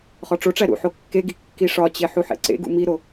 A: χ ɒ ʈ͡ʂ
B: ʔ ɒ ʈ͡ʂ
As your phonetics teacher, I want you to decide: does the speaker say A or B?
A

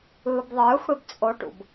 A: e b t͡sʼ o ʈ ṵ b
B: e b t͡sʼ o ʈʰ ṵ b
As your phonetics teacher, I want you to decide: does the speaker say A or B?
A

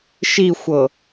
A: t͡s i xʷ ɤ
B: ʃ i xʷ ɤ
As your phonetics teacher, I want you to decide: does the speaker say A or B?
B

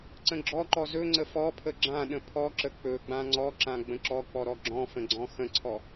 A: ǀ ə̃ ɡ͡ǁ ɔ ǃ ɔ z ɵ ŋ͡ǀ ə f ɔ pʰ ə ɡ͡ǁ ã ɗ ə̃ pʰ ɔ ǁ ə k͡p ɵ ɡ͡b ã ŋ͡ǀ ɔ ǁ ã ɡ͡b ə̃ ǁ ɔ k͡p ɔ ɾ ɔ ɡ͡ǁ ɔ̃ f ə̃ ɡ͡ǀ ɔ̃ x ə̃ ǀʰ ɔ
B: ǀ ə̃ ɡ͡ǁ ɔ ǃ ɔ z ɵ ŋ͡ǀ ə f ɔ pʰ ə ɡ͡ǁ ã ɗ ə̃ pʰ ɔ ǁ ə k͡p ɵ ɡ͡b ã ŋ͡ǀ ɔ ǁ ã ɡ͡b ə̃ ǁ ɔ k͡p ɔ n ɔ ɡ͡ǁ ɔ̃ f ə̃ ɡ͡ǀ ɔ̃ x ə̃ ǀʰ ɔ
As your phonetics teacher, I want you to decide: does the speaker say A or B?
A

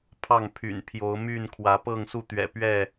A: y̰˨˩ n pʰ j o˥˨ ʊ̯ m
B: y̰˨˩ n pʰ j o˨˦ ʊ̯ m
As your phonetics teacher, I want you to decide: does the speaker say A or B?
B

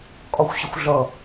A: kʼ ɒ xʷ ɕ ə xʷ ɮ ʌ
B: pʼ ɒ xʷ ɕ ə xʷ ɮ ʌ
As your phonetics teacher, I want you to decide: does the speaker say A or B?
A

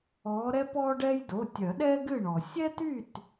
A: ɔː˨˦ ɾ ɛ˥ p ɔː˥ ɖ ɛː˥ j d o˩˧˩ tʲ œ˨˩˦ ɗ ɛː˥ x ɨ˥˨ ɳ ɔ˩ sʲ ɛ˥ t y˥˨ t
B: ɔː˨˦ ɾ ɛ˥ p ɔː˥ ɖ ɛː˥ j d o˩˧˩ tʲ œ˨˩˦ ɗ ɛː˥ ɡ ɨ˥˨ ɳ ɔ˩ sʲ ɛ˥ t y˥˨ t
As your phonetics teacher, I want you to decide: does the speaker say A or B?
B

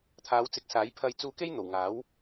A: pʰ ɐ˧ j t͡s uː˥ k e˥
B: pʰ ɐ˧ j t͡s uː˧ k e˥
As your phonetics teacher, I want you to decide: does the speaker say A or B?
B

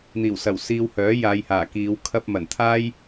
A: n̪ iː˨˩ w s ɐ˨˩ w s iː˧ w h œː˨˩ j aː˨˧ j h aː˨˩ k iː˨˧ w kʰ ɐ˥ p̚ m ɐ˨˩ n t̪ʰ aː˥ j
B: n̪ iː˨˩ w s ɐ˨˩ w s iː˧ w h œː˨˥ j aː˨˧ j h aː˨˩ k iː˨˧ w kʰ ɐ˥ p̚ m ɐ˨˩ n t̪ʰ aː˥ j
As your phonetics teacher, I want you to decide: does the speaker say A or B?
B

